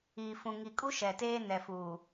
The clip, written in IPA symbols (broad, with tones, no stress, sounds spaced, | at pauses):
iː˨ f ũ˨ ŋ i˨ kʼ u˦ ʃ ɛ˨ t eː˦ n ɛ˨ f uː˨